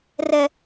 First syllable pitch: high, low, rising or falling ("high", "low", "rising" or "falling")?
high